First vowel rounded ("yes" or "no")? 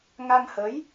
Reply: no